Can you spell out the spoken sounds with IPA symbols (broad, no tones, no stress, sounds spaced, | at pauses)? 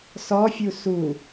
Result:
s ɔ fʲ u s u